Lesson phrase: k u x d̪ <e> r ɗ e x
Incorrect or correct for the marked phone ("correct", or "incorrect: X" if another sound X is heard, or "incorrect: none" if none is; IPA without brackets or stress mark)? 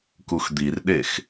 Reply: incorrect: i